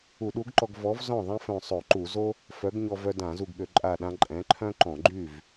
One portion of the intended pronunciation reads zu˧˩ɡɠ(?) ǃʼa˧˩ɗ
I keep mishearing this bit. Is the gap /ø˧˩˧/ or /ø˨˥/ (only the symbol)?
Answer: ø˧˩˧